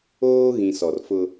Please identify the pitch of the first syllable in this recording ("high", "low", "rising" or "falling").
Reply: high